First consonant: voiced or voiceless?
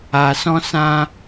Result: voiceless